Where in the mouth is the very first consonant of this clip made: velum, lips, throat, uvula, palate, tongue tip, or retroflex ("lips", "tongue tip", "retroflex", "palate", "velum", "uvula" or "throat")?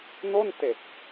tongue tip